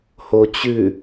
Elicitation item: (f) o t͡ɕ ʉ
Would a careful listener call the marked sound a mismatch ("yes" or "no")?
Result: yes